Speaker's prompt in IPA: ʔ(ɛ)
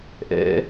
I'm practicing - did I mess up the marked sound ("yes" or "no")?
yes